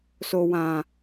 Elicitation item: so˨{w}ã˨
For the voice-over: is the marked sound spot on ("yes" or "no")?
yes